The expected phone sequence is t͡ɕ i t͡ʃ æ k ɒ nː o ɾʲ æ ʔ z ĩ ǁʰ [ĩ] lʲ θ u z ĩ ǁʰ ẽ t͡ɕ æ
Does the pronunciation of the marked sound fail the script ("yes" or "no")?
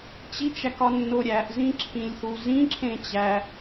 no